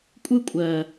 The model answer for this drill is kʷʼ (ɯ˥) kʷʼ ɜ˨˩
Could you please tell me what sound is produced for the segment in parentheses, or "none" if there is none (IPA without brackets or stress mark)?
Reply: ɯ˥